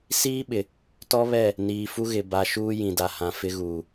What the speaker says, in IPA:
s iː˦ ɓ ɪ˨ | t ɔ˦ β ɛ˦˨ | n iː˨ f u˦ ɣ ɪ˨ b a˨ ʃ uː˦ j ĩ˨ d a˨ h ã˨ f ɪ˦ ɣ uː˨

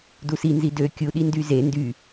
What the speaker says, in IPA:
d u s i n z i d ø kʲ u ɗ i n d y z e n d y

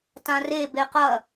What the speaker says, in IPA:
t ã r e b e q ɐ

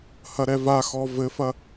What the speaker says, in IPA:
h ɐ ɾ ɛ v a x ɔ v ɘ f ɐ

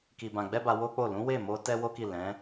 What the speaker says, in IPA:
k i˨ b ã˨ ɡ͡b ɛ˧ b a˧ w o˦ k͡p o˦˨ l ũ˨˦ w e˦˨ m o˧ t ɛ˦ w o˦ k i˦˨ l ɛ̃˨˦

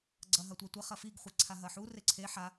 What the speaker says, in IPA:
ɡ͡ǀ ɐ ɦ ɐ tʷ a tʷ ɐ χ ɐ f i ɡ χʷ e ǀʰ a ɦ ɐ ħ u r e ǀʰ e ħ a

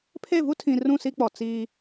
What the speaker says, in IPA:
pʰ e˦˨ v u˦ tʰ ĩ˨ r ũ˦˨ s i˦ k͡p ɔ˨ t͡s iː˦

